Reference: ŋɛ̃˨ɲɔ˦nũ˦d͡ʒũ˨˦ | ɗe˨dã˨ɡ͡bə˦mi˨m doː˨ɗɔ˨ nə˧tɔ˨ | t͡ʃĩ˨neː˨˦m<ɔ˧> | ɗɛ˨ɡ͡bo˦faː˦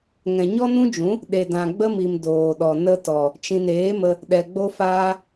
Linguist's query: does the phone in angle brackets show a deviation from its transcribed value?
yes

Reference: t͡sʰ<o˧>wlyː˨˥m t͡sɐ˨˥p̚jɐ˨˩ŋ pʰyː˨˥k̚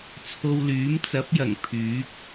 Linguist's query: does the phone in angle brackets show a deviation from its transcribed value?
no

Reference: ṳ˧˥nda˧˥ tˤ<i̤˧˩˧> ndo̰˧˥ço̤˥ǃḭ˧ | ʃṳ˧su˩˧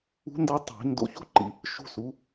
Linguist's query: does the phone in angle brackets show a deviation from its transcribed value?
no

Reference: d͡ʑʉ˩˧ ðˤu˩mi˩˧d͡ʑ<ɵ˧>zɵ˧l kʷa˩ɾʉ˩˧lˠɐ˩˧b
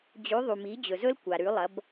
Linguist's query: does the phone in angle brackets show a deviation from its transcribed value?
yes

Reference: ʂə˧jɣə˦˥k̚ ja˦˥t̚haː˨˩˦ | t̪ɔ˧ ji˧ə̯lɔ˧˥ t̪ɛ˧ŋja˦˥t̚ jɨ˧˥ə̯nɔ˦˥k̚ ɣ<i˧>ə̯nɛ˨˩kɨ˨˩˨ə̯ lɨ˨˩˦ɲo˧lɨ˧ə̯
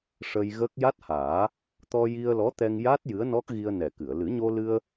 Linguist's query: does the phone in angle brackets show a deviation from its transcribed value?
no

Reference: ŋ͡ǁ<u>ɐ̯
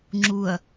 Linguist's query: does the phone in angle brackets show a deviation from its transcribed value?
no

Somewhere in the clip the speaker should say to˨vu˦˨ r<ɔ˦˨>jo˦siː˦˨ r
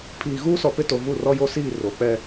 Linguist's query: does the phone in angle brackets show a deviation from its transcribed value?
yes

